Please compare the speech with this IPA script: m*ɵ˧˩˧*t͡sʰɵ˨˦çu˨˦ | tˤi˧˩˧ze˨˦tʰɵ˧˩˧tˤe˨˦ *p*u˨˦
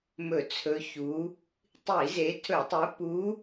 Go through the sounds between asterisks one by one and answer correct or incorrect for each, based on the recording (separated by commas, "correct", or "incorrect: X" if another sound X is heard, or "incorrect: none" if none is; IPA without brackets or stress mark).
correct, correct